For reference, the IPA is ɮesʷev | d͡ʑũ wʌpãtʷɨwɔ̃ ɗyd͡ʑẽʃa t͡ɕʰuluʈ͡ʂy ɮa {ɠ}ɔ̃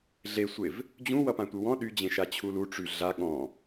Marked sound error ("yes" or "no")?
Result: no